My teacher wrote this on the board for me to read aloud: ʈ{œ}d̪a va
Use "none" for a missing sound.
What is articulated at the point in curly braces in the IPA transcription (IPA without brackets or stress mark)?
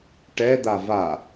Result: ɛ